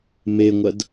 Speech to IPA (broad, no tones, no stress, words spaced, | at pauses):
meŋʷɐd